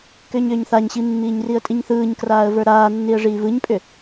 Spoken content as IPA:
k ʏː ɲ ʏː ɲ θ a ɲ ɕ i mː iː ɲ r i ə̯ tʼ i ɲ θ ɯː ɲ k r aː ə̯ v ə˞ ɾ aː nː i ə̯ ʐ iː v ɯ ɲ pʼ ʏ

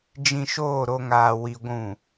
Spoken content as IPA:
d͡ʒ ĩ˧ ʃ oː˦˨ ɾ o˧ ŋ aː˧ w i˧ ɡʷ ũ˦˨

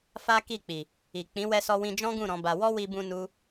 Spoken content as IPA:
f a˦ k i˦˨ k͡p i˨ | i˨ k͡p ĩ˨˦ w ɛ˧ s ɔ˧ w ĩ˧ d͡ʒ ɔ̃˦ ɡ ũ˦˨ ɾ ɔ̃˨˦ b a˧ w ɔ˦ w i˧ b ũ˧ n u˦

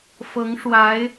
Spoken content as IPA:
f ɤ˧˥ ŋ ʂ w a˧˥ ɪ̯

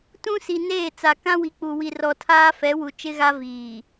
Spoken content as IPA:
t ũ˦ s i˨ n eː˦˨ t͡s a˨ k ã˦ w i˨˦ k͡p u˨ w i˨ r ɔ˨ tʰ aː˦ f ɛ˨˦ w u˨ t͡ʃ ɪ˦ ɣ a˦ v iː˨

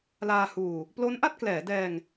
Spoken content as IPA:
l aː˧ h uː˧ | p l o˦˥ n ʔ a˥˩ t̚ k l ɛː˩˦ d ɛː˧ ŋ

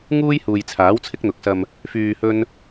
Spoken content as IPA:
ŋ uː˥ j h uː˨ j t͡sʰ aː˨˥ w t͡sʰ ɪ˥ k̚ n̪ ʊ˨˥ k̚ s ɐ˧ m | f yː˧ h ɵ˥ n

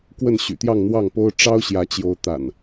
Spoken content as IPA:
k w ə˥˨ n ɕ y̰˨˩ t̪ j ɑ˥˨ ŋ n̪ w ɑ˥˨ ŋ p o˦ ʊ̯ ʈ͡ʂ ɑ˦ ʊ̯ ɕ j ä˨˦ t͡ɕ j o˨˦ ʊ̯ t̪ a̰˨˩ n

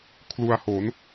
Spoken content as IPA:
kʰ l u˧ a̯ h o˩˦ n

